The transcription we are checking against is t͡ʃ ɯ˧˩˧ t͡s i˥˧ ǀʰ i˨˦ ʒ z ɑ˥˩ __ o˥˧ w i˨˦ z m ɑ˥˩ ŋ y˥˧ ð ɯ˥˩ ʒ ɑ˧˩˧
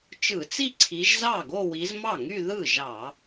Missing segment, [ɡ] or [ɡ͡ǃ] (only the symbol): ɡ